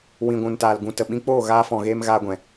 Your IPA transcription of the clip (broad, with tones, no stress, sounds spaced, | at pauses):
w ĩ˨ ɡʷ ũ˨ n t aː˨ l ɡ ũ˨ t ə˨ ɓ ĩ˧ k͡p oː˦˨ ɣ aː˧ f ɔ̃˨ ɣ eː˧ m ɣ aː˧ ɡʷ ɛ̃˨